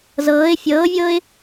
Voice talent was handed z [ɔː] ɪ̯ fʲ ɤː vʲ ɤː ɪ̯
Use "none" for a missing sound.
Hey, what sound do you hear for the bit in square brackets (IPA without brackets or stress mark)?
ɤː